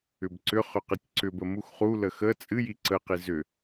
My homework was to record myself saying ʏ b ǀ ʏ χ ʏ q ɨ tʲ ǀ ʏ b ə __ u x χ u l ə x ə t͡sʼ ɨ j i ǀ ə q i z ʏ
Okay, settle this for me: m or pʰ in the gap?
m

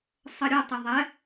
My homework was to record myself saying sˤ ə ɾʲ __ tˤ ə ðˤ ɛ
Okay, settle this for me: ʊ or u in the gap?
ʊ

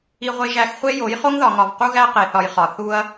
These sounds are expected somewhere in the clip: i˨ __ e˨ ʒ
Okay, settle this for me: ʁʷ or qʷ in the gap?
ʁʷ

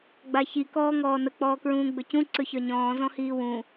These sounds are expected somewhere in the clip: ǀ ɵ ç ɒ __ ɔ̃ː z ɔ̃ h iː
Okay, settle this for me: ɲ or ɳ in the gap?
ɲ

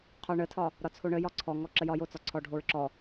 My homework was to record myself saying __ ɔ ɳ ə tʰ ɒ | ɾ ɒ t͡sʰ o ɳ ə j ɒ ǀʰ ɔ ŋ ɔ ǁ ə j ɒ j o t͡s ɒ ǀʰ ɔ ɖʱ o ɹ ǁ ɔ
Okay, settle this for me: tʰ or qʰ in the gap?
qʰ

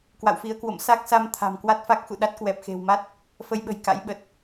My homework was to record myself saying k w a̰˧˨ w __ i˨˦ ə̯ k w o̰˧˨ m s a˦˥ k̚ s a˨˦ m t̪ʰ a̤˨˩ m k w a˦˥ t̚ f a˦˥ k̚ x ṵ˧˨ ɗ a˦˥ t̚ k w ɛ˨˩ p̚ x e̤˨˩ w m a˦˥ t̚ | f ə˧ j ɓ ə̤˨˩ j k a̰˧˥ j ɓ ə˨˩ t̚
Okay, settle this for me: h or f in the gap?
f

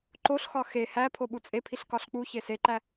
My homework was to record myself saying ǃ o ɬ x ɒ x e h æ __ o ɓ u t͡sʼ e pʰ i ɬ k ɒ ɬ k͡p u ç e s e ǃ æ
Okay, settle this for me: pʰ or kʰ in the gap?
pʰ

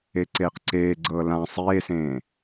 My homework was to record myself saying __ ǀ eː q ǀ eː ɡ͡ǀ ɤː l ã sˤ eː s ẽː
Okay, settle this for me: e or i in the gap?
e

